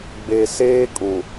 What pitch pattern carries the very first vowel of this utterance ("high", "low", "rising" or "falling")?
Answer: low